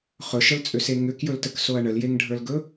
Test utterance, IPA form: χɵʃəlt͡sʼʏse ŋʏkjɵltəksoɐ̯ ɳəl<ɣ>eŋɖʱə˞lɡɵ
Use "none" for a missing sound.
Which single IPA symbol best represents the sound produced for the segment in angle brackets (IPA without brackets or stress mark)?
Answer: j